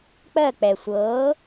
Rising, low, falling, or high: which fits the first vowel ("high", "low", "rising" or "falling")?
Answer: falling